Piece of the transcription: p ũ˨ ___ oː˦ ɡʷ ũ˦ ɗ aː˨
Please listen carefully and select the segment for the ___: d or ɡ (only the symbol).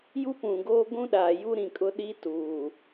ɡ